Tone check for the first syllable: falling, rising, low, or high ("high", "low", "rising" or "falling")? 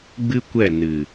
high